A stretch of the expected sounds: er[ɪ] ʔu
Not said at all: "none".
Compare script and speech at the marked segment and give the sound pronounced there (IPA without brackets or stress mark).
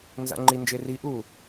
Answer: i